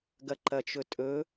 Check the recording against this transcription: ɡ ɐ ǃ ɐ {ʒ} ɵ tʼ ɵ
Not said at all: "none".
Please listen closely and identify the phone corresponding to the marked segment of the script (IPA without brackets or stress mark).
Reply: t͡ʃ